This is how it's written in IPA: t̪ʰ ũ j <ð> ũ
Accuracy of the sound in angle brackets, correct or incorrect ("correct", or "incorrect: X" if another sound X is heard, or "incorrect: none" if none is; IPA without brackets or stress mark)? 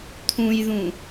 correct